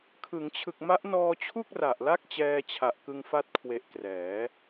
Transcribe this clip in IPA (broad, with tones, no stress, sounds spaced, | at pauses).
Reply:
kʰ ɯ˩˦ ŋ t͡ɕʰ ɯ˨˩ k̚ m a˦˥ ʔ n ɔː˧ t͡ɕʰ u˥˩ k̚ r a˨˩ ʔ l a˥˩ k̚ t͡ɕ ɛː˧ t͡ɕʰ a˨˩ ʔ k ɯ˧ ŋ f a˦˥ t̚ kʰ w e˨˩ ʔ k r ɛː˩˦